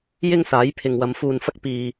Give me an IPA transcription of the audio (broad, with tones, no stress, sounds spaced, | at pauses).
j ɪ˥ ŋ s aː˨˥ j pʰ ɪ˨ ŋ w ɐ˨˧ m f uː˧ n f ɐ˥ k̚ p iː˧